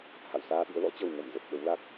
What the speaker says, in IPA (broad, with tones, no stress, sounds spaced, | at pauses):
h a̰˧˨ w s aː˧ ɓ ɨ̰˧˥ ə̯ l ɔ̰˧˥ t͡ɕ ə˨˩ w ŋ ə˧˩ m z ə˨˩ p̚ ɓ ə˨˦ w l a˦˥ k̚